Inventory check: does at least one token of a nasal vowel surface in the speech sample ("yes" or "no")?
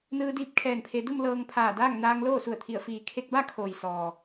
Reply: no